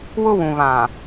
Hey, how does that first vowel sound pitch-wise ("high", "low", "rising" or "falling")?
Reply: high